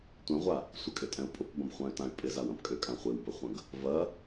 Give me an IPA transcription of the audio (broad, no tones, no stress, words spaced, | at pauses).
tʷɛ̃ʁʷa | sʷɪkʼʏtʼɛ̃u̯ pʼʊpbɐ̃bχʷãy̯tãy̯ pʼɪzawɐ̃p kʼʏkʼã χʷɪwbɐχʷɐ̃ɡ | vɐ